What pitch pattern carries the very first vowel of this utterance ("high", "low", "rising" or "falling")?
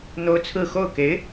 high